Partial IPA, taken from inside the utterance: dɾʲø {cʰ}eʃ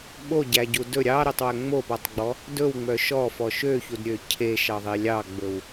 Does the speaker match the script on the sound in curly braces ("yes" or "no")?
yes